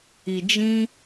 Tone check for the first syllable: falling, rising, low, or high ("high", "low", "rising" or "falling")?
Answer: low